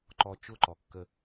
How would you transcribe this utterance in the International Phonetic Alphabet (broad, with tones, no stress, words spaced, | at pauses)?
ǃɔ˨t͡ʃʊ˦˨ǃɔ˨kːə˦